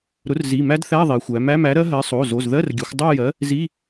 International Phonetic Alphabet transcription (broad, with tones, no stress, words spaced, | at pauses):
ɾʊ˨˥rzi˩˧˩mæ˦˥dθæ˧˥˧ ðˤi˩˧xʷæ˩˧ mæ˧˥˧mæ˨˥ɾɜ˦˥ɦɜ˨˥ sˤo˩˧˩ zo˩˧˩zðɜ˧˥˧rɡʲə˩˧xʷ dˤo˥˧jɜ˨˥ | zi˧˥˧